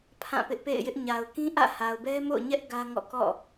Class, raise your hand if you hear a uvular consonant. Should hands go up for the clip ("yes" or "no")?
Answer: no